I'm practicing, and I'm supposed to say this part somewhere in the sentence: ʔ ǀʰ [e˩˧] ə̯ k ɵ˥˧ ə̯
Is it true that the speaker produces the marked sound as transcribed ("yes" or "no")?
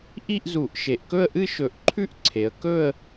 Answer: yes